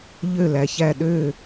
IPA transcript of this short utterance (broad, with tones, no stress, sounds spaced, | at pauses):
ʎ ø˦˨ l æ˨ ç æ˦˨ ɗ ø˦˨